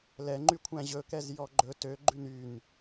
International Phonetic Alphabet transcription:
l ɛ ŋ͡ǃ y kʷʰ æ̃ ʑ ɵ k ɛ z j ɔ ɡ͡ǃ ɵ t ø ɡ͡ǃ ʉ n y n

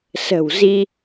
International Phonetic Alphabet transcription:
s ə̤˨˩ w z i˧

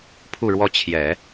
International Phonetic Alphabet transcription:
pʰ u˥˧ ɻ w ɔ˥˩ t͡ɕʰ j ɛ˨˩˦

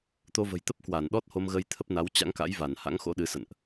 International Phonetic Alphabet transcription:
t̪ o˧ v ə̤˨˩ j t̪ ə˦˥ p̚ k w a˧˩ n ɗ ɔ˦˥ t̚ h o˧ m ɣ ə˧ j t̪ʰ ə˦˥ p̚ n a˨˦ w t͡ɕ a̰˧˥ ŋ k a̰˧˥ j v a˧˩ n h a̰˧˥ ŋ x o̰˧˥ ɗ ɨ˨˦ s ə̰˧˨ n ʔ

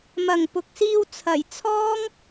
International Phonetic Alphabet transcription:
m ɐ˨˩ ŋ p ʊ˨ k̚ s iː˧ w t͡sʰ ɐ˨˩ j t͡sʰ ɔː˥ ŋ

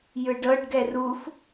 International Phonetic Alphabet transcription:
j ɯ ɖ ɤ ɖ ɡ ɛ r u f

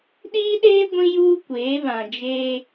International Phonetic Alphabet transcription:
ɗ iː˦ ɗ eː˦ ɡʷ ĩ˦ j uː˦ kʷ eː˨˦ β ã˨ d͡ʒ eː˦

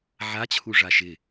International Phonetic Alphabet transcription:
ʕ a t͡ɕʰ u ʐ a ʃ ɪ

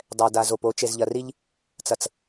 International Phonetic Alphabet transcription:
dˤ ɛ˨ d a˨ z o˨ p o˨˦ t͡ʃ e˨ z ʎ ɐ˨ r i˦ ʎ | t͡s ɐ˨ t͡s

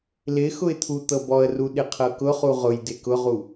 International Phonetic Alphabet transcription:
l ɪ x ʊ ɪ̯ t̪ʰ u t̪ ɤ b ɔ ə̯ r u ɗ ɪ qʰ ɤ k ʊ χ u ʁ ʊ j d ɪ k ʊ ʁ u

